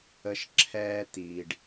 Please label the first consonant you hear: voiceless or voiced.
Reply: voiceless